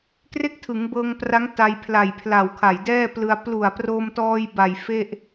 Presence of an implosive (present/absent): absent